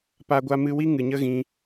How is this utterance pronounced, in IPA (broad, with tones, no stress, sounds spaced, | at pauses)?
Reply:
p a˧ ɡʷ a˧ m ɨ˧ w i˦ ŋ ɨ˨ ɲ ə˦ ɣ ĩ˧